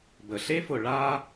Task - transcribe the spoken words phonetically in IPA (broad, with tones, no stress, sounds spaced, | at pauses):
b ə˩ ɬ e˥ f ʊ˨ ɭ a˥